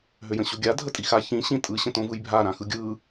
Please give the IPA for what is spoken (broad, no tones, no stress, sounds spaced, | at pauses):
ɦ ø j ə̃ ɕ o ɡʲ a dʱ ə tʼ i x a ç ĩ ɕ ĩ tʼ ɯ ɕ ə̃ t õ v ɯ j bʱ a ɾ ã x ɯ ɡʲ ɯ